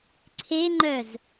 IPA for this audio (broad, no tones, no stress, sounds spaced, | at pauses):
ǀʰ e ŋ͡ǃ œ z